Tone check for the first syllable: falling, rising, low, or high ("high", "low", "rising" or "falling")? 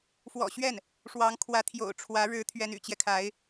low